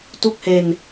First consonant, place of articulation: alveolar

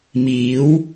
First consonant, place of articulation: labial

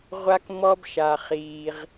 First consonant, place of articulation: uvular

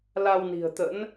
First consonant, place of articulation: alveolar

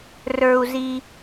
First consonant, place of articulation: alveolar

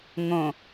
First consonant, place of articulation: velar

